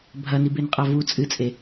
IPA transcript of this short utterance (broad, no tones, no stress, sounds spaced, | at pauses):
bʱ ɐ n i b e n qʼ a v u t͡sʼ ɨ t͡sʼ e